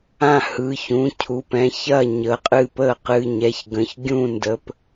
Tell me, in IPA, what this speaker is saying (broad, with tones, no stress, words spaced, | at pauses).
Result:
ã˥˩ hɯ˩˧˩çũ˩˧˩cʰu˩˧˩p ɛ̃˩˧˩çɐ˥˩ ɲə˩˧˩qʼɨː˥˩pəː˥˩ qɨ˩˧˩ɲɛ˩˧˩çɡə̃˩˧˩ç ɡʲũ˥˩ndə˩˧˩p